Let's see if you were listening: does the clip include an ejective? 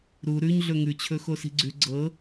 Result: no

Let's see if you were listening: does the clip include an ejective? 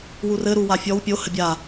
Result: no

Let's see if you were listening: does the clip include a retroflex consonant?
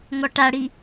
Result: yes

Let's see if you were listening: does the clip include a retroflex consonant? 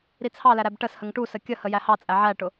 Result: yes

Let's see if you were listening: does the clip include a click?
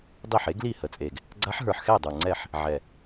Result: yes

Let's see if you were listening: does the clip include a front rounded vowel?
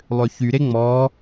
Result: yes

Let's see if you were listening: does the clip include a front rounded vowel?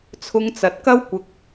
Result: no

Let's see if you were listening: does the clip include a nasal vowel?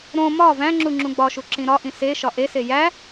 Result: yes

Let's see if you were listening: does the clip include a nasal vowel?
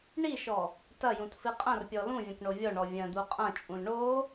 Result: yes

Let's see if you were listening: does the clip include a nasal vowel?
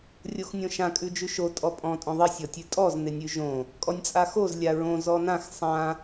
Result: yes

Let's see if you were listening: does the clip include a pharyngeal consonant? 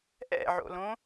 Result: yes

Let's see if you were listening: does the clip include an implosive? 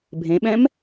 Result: yes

